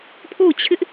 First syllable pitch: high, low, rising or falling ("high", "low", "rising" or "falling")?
falling